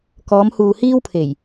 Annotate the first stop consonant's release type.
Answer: plain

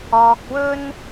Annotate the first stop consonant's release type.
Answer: plain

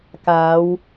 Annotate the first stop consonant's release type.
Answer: plain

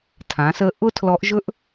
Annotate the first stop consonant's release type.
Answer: aspirated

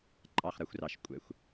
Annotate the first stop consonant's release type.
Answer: click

